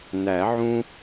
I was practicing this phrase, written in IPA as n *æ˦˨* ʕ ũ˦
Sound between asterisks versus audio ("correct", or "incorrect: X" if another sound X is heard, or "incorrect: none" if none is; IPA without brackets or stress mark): incorrect: æ˨˩˦